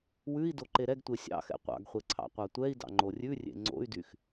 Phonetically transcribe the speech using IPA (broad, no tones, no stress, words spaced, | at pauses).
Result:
wʉi̯ doǃeɾɛɡtʷe sʲɑ̰ xɛ̰qʷɑ̰ɡχʷe ǀʰɑ̰qʷɑtʷɛi̯dɑ̰ ŋ͡ǃorʲʉrʲḛ ŋ͡ǀo̰y̯dyx